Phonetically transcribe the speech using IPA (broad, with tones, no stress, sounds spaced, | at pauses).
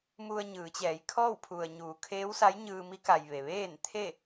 m u˧ ə̯ ɲ ɯː˩˧ t͡ɕ ɛː˩˧ j kʰ ɔː˥˨ w pʰ u˩ ə̯ ɲ uː˩˧ kʰ eː˧˥ w s a˧˥ j ɲ ɯː˧ m i˧˥ k a˩ j ʋ e˩ ʋ eː˥˨ n t̪ʰ e˥˨